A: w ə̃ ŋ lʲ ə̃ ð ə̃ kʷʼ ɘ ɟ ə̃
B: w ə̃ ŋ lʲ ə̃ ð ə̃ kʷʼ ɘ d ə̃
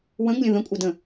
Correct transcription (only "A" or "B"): B